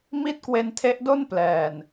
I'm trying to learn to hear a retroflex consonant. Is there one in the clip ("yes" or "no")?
no